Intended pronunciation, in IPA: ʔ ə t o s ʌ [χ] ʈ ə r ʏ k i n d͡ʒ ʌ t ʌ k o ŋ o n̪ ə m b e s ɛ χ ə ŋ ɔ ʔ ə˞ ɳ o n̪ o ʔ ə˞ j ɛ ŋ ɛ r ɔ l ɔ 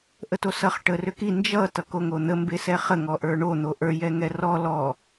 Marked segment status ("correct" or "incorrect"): correct